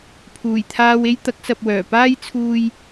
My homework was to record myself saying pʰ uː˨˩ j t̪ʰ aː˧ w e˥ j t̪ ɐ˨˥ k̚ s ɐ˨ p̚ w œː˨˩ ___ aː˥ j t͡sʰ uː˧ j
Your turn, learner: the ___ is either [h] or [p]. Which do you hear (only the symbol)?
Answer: p